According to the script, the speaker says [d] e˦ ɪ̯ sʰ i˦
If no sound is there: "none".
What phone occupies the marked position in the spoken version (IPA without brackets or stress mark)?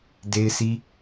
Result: d